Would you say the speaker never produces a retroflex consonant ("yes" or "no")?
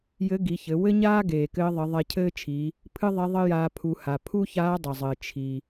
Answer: yes